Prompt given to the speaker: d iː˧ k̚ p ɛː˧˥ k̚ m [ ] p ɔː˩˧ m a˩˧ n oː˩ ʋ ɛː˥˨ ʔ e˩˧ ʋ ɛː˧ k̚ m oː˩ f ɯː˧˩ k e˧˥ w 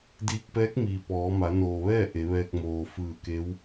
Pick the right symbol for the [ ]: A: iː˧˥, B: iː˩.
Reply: B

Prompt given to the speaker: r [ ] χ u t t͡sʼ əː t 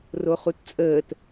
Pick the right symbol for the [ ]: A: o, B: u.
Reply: A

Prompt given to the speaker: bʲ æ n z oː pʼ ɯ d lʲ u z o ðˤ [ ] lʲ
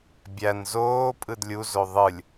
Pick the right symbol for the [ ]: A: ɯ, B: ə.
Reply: A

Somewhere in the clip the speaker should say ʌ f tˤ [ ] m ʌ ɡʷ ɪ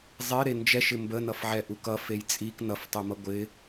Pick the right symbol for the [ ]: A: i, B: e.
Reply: B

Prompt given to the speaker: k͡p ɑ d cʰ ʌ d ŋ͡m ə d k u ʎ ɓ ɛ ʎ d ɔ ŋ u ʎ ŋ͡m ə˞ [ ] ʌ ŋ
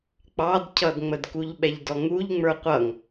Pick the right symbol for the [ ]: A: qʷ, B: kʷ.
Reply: A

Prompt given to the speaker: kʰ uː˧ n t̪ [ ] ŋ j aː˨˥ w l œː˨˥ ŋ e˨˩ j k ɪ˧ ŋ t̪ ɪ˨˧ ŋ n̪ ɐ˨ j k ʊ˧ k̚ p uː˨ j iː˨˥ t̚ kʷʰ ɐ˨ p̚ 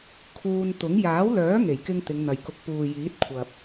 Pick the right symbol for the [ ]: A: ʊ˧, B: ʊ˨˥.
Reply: B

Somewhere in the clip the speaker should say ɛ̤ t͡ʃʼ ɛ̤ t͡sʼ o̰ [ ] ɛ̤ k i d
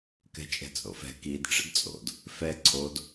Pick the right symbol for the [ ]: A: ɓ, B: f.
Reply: B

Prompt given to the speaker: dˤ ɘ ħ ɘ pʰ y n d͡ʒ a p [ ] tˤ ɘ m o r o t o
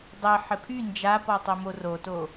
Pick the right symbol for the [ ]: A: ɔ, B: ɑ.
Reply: A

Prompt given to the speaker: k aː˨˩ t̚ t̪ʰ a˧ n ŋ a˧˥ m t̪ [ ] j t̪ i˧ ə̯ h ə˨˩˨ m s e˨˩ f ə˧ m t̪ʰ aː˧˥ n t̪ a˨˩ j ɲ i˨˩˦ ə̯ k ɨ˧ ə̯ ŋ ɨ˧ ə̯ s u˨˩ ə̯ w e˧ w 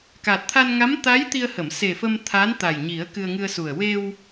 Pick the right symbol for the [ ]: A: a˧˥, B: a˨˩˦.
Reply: A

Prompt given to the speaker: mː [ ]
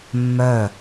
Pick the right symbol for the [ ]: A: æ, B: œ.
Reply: B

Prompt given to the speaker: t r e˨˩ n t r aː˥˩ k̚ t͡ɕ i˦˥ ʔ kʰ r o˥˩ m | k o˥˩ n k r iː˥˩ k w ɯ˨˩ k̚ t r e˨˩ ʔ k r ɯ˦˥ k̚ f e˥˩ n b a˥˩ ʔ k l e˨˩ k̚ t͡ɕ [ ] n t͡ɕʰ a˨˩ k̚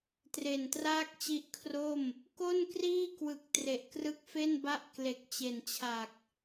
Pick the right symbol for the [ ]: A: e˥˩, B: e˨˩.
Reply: B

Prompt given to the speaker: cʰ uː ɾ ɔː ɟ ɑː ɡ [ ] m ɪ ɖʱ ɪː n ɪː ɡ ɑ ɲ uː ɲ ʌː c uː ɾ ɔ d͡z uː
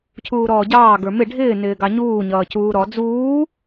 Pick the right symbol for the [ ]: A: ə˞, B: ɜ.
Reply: A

